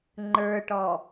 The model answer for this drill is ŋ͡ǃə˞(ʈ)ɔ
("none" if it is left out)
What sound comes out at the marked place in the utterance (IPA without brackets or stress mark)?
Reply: ʈ